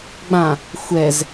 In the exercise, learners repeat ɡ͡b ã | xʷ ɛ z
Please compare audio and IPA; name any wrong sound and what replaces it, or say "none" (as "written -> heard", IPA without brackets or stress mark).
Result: none